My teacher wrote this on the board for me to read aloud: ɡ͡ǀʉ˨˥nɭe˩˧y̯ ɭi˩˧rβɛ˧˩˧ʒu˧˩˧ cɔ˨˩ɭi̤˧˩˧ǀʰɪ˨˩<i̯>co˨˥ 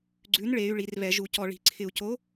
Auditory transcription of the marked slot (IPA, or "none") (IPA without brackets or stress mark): u̯